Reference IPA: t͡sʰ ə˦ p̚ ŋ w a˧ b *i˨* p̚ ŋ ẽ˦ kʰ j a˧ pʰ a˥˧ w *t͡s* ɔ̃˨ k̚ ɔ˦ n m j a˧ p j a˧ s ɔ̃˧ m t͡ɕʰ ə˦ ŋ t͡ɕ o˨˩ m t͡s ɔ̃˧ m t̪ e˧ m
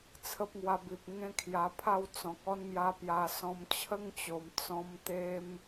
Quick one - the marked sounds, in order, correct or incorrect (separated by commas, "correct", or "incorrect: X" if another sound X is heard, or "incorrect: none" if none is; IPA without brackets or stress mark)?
correct, correct